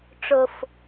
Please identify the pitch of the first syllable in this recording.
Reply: low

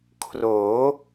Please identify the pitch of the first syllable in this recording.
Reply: rising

